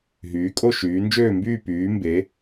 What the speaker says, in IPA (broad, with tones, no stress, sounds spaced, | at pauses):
ɦ yː˩˧ kʼ o˦˨ ʃ yː˩˧ n d͡ʒ øː˦˨ m b yː˦˨ p yː˩˧ m b e˩˧